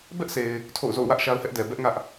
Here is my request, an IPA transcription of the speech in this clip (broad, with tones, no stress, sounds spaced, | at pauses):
b ɛ˦ ʔ sʰ e˨ ɪ̯ | tʰ o̰˦˨ ʊ̯ z o̰˦˨ ʊ̯ w ä˦ ʔ ʃ a˦ ʊ̯ h ɛ˦ ʔ d ɛ˨ b ɛ˦ ʔ ŋ ä˦ ʔ